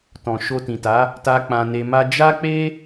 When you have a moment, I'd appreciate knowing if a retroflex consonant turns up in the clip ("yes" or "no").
no